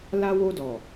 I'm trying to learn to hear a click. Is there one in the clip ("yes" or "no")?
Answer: no